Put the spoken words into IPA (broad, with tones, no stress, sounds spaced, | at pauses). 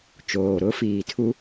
t͡ʃ oː˨ ɾ ʊ˦ f iː˨ tʰ u˦